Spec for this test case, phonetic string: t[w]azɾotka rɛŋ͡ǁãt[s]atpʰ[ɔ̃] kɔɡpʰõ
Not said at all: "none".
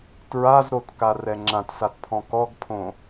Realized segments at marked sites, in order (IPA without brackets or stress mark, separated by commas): ɹ, s, ɔ̃